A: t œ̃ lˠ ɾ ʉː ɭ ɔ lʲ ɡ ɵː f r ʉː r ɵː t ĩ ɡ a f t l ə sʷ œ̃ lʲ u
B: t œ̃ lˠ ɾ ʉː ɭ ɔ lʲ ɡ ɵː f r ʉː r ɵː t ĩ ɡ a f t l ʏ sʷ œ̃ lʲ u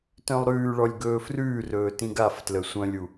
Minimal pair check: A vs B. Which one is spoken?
A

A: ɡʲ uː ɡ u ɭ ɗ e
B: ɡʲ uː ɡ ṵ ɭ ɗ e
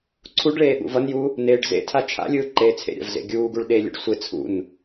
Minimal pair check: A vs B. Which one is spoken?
A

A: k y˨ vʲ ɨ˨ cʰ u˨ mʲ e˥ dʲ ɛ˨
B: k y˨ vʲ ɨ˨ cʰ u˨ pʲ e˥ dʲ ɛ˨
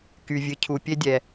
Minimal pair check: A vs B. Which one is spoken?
B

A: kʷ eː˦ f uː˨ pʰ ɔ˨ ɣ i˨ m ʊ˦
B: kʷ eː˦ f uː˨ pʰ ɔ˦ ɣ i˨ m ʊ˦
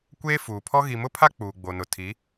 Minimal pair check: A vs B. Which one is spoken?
B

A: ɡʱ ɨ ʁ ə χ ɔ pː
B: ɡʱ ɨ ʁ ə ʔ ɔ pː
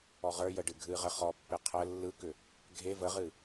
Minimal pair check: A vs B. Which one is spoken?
A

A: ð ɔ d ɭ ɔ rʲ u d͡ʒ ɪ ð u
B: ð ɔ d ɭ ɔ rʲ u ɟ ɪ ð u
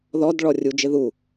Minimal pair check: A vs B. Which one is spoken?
A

